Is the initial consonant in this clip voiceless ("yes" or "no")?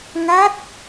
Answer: no